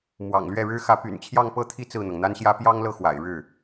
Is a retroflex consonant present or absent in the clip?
present